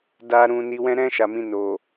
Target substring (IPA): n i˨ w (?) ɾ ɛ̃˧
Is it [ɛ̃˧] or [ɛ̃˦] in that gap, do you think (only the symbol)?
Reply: ɛ̃˧